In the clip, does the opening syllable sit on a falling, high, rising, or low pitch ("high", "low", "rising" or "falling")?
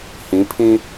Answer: rising